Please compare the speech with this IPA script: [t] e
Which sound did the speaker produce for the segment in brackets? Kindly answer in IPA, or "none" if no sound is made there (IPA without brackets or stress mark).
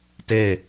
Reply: t